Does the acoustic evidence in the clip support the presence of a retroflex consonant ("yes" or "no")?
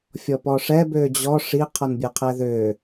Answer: yes